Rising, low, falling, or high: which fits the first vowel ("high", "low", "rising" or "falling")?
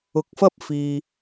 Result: rising